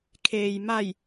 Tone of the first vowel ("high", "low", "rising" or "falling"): low